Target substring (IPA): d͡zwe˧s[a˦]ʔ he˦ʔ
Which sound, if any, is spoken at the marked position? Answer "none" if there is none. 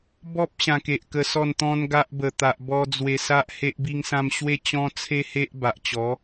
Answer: a˦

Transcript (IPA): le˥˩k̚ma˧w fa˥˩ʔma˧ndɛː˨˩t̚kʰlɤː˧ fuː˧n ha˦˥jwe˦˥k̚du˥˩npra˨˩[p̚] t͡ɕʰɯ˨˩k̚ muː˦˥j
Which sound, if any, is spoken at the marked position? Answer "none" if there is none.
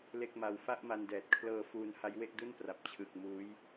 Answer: p̚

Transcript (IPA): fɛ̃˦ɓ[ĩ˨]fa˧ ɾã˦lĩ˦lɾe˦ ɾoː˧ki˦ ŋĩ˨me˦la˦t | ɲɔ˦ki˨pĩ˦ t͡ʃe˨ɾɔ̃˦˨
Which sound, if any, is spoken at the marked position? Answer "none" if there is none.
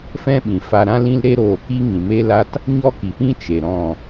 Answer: ĩ˨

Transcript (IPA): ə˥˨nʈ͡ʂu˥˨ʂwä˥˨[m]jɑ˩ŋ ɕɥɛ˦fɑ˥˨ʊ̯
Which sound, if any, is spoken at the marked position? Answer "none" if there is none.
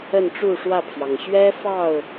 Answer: pʰ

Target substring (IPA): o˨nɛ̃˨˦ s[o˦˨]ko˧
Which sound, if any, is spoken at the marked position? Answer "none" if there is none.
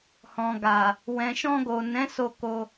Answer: o˧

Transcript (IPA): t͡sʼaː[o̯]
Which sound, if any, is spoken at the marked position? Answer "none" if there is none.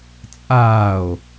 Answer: o̯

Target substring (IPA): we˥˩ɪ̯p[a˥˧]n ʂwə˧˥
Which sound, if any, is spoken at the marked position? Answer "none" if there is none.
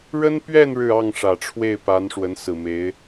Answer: a˧˥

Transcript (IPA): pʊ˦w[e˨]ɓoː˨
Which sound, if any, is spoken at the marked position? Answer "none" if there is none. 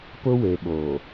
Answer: e˨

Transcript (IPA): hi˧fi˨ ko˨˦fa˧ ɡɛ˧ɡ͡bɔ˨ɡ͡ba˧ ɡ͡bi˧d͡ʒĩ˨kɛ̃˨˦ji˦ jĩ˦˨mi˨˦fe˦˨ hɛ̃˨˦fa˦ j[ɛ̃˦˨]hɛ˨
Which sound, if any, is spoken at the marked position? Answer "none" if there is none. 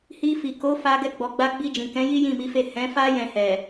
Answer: ɛ̃˦˨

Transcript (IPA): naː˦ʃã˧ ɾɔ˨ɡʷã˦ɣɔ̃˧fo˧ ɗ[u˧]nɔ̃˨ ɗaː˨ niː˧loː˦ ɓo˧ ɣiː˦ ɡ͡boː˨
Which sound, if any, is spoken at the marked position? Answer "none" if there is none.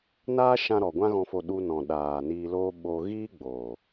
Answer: u˧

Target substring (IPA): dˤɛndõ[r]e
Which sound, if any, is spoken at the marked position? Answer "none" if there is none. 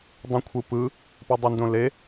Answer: l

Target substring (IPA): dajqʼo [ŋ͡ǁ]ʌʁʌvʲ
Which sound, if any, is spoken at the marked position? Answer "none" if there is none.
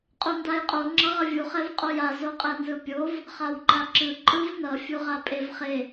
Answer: ŋ͡ǁ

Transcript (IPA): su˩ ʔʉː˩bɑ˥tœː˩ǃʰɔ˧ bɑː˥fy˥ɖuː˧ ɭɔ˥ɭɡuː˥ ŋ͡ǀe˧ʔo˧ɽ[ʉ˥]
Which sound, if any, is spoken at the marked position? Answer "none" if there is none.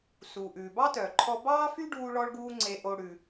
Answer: ʉ˩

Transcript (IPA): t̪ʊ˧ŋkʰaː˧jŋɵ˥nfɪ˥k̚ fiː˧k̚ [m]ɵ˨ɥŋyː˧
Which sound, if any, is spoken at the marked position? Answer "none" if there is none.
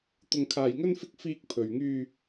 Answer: pʰ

